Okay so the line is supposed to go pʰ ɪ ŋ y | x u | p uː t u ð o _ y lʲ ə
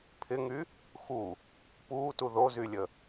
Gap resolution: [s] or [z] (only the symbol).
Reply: z